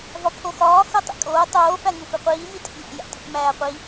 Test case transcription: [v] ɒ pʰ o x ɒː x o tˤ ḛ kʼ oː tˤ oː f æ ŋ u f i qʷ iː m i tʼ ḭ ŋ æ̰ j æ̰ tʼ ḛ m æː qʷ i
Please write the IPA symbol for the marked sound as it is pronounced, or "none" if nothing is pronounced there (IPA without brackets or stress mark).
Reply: v